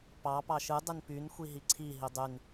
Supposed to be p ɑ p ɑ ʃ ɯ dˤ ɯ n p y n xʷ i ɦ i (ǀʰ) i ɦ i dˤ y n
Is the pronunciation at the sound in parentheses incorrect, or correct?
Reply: correct